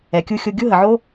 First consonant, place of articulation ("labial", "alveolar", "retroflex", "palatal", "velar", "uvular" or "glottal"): velar